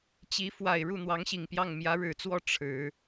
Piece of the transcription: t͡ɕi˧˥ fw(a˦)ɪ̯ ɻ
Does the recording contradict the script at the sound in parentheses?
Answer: yes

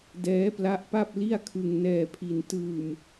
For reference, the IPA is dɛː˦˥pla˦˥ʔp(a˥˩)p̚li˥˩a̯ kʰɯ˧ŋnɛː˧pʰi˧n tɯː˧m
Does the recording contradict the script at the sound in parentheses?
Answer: no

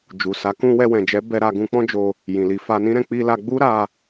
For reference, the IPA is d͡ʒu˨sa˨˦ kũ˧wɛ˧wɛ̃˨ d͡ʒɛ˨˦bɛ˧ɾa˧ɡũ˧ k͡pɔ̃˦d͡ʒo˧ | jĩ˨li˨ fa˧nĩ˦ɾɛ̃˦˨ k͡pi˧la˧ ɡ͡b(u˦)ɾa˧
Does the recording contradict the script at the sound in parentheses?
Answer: no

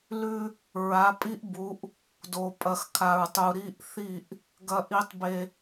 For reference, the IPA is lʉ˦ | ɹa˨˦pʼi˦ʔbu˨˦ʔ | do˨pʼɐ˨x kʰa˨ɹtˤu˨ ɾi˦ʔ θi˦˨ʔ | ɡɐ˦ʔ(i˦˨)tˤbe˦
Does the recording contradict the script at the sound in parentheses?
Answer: yes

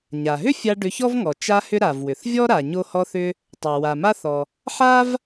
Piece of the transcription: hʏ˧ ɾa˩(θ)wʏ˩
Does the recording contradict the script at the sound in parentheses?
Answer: yes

